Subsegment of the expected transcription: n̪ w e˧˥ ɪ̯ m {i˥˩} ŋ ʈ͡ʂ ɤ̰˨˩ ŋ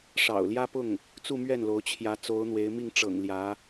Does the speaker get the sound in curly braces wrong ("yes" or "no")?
no